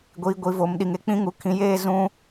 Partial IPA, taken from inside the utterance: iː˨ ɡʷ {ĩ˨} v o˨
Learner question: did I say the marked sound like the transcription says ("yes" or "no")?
no